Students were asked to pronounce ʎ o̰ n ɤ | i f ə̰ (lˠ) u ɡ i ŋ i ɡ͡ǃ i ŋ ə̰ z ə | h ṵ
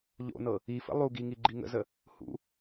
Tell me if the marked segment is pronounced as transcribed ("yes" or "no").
yes